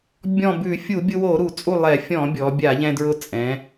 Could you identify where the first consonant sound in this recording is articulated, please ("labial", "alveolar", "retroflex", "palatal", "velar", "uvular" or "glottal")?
labial